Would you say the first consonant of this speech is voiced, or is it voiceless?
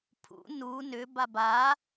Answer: voiceless